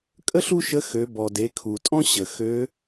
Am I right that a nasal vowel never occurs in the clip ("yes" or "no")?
no